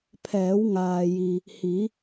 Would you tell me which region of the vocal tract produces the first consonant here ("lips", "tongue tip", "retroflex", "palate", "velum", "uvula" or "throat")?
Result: lips